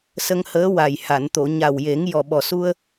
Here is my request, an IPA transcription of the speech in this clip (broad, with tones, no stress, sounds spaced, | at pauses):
s ə˧ ŋ h əː˧˥ w a˨˩ j h a˨˩˨ n t̪ o˨˩˨ ɲ a˨˩ w j e˨˩˦ ŋ j ɔ˨˩ ɓ ɔ˨˩ s u˧ ə̯